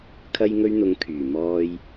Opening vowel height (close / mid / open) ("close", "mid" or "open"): open